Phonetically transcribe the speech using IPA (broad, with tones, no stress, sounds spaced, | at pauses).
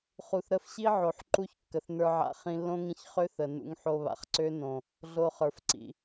χ u˨ θ ɾ ə˧ f ɕ i˦ ʕ o˨ ħ ǃ u˦˨ ç kː ə˨ θ n ə˞˧ ʕ a̰˧ χ ĩ˧ lː õ˦ ŋ ĩ˧ ç χ ø˦ θ ə˨ n ṵ˧ ŋ ħ o˧ β a̰˨ χ ǀ ø˦ n õ˨ | ɮ o˧ χ ə˞˨ f ǀ ḭ˨